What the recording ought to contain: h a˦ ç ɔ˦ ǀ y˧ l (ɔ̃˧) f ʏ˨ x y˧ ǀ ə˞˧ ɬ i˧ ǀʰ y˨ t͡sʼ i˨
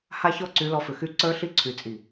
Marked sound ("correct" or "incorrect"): incorrect